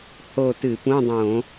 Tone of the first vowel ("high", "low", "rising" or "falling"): falling